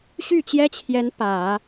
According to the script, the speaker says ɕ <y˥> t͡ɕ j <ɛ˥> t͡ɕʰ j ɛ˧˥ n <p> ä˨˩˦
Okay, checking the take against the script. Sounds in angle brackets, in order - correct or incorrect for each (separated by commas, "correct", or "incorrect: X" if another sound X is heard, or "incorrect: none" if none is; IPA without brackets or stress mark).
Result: incorrect: y˥˩, correct, correct